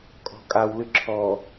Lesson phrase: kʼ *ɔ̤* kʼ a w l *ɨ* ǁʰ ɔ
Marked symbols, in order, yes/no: yes, yes

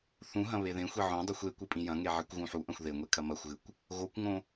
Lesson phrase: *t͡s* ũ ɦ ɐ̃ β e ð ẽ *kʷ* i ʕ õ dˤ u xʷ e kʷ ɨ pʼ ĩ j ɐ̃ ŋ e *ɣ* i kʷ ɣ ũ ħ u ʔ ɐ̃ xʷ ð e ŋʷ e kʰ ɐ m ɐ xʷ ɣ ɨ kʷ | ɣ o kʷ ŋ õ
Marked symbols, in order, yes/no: no, no, no

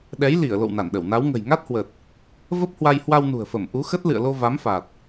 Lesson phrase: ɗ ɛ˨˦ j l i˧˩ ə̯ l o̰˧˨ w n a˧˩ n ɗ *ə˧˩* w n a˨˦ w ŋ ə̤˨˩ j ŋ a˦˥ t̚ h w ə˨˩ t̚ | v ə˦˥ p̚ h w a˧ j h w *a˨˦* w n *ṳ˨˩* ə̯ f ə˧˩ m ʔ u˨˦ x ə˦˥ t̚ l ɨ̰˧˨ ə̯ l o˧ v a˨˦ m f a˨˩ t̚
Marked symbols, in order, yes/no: yes, no, yes

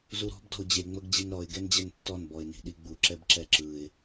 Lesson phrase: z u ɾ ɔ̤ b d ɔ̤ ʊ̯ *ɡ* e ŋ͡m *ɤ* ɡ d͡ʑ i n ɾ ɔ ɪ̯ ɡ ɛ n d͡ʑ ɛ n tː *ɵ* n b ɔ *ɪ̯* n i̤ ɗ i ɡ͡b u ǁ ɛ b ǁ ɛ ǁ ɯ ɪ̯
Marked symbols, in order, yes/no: no, yes, no, yes

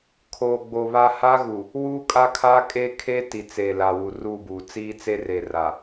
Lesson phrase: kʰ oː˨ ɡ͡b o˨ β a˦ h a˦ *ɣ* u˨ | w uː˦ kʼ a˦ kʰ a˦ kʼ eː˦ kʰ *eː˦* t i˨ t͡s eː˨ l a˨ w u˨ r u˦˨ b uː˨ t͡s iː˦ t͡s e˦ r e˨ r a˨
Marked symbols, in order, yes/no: yes, no

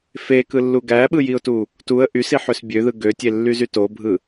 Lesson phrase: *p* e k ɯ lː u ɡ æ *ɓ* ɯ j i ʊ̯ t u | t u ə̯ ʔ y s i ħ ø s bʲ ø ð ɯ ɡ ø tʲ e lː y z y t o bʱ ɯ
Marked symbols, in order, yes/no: no, yes

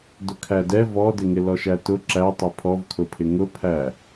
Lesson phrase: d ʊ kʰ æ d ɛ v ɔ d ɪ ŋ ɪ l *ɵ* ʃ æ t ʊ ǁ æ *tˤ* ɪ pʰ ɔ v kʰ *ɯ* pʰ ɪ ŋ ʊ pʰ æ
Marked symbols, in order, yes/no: no, yes, no

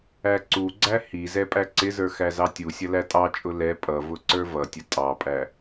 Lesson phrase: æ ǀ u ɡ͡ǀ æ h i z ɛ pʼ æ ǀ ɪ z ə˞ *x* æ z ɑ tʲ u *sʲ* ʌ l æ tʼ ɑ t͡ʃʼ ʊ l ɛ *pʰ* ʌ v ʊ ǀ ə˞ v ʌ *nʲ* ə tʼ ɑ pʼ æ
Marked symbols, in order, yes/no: yes, yes, no, no

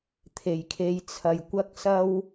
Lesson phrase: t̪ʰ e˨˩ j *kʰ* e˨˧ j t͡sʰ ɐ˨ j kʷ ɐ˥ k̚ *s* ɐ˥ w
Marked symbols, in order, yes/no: yes, yes

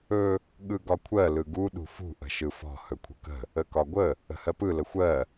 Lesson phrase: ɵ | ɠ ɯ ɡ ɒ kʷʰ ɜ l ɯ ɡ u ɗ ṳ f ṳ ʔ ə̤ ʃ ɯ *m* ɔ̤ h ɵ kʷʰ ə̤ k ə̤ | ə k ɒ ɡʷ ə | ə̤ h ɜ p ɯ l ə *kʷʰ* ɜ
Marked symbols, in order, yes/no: no, no

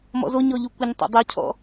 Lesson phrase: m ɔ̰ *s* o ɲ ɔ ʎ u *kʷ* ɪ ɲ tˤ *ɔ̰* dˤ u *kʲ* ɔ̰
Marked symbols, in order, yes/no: no, yes, no, no

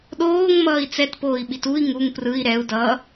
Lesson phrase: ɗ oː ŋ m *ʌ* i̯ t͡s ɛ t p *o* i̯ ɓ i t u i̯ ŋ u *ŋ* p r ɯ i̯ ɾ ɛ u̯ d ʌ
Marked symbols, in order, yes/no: no, no, yes

